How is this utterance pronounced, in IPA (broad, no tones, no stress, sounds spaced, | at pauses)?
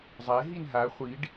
zˤ ɛ ɦ i n ɦ a χʷ i ɖ